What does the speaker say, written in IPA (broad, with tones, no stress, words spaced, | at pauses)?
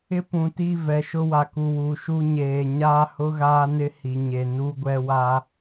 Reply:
ɪ˦pũ˨ti˦˨ vɛ˨ʃʊ˦ wa˨ku˨ wu˨ʃu˦ɲeː˨ ɲaː˦hʊ˦ɣaː˦nɪ˦ hi˨ɲe˨ nu˦ɡʷɛ˦wa˦